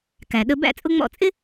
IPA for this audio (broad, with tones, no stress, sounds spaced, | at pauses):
k æ˩ ɗ ə˧ b æ̰˥˩ t͡sʼ ʊ˥ ŋ͡m ɔ̰˥˩ t͡sʼ ɪ˥